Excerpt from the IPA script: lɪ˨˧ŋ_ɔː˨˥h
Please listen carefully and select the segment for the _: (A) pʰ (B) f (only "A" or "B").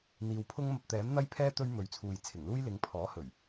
A